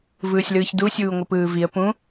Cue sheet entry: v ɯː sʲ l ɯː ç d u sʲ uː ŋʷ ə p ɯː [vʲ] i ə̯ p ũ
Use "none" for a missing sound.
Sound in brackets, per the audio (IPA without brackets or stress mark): v